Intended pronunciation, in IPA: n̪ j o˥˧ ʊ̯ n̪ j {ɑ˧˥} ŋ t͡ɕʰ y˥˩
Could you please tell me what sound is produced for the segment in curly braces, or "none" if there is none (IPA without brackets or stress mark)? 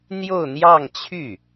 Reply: ɑ˥˧